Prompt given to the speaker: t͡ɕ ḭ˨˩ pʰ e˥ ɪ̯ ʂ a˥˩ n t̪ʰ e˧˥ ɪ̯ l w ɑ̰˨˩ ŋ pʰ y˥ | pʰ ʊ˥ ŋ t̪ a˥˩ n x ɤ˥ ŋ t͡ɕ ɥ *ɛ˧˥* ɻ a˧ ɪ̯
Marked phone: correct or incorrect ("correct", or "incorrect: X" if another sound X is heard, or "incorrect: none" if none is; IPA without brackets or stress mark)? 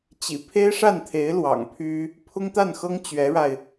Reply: correct